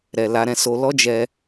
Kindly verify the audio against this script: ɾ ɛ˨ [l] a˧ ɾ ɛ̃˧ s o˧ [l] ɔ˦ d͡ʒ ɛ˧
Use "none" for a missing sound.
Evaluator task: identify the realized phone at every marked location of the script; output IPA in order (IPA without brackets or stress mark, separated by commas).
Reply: l, l